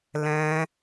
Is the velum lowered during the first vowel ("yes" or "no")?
yes